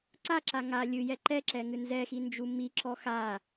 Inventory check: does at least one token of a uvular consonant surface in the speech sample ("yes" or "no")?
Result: no